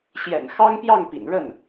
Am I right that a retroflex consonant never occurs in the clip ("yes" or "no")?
no